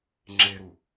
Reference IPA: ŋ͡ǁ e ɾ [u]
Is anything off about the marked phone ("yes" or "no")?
no